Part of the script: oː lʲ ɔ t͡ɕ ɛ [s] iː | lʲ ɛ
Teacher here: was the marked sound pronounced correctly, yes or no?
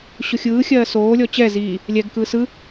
no